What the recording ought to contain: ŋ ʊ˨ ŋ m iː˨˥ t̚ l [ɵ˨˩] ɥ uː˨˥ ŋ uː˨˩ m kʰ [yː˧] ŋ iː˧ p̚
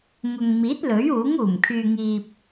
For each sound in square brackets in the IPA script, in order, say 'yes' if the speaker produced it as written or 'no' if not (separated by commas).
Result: no, yes